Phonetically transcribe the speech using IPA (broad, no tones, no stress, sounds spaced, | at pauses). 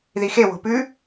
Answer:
ð i x e w o̤ p ʉ